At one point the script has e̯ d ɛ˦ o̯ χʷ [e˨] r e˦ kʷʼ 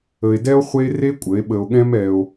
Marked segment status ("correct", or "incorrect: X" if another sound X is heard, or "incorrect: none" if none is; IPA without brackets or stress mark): incorrect: e˦